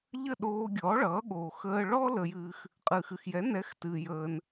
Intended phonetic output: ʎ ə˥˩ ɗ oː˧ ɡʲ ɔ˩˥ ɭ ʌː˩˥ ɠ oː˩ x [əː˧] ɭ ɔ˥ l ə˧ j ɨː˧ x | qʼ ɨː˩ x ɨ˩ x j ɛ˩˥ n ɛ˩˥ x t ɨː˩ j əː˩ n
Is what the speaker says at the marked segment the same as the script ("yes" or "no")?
yes